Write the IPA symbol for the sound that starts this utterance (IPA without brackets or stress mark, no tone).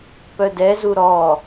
p